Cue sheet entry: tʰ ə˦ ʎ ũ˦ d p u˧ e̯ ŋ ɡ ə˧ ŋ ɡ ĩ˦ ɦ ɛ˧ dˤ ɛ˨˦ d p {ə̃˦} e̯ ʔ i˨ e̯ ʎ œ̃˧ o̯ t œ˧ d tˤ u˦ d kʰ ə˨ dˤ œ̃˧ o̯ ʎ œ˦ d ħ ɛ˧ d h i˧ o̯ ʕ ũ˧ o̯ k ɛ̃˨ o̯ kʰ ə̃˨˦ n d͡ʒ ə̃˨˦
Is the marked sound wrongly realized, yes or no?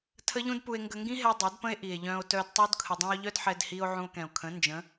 no